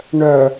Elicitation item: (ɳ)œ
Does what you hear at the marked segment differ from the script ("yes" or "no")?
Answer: no